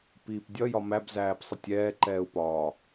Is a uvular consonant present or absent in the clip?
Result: absent